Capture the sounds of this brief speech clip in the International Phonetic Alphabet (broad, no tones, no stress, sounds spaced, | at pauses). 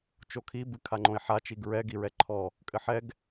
t͡ʃ o kʰ i b ɨ kʰ a ŋ͡ǃ õ e̯ ħ a t͡ʃ i ɡ ɹ ɛ ɡ i ɹ ɛ ǃʰ ɔ | kʼ ɘ ħ ɛ ɡ